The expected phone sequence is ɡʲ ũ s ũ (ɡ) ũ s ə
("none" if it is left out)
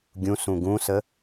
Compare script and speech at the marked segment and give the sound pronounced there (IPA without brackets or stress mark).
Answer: ɡ